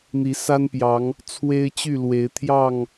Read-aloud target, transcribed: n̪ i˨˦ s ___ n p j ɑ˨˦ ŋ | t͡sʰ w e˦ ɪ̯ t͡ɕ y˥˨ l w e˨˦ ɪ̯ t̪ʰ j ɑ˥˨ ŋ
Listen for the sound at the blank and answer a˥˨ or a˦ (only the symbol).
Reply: a˦